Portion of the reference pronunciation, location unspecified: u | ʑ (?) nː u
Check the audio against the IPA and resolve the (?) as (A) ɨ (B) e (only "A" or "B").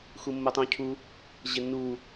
B